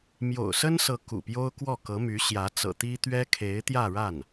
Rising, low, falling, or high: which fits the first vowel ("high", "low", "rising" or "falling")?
low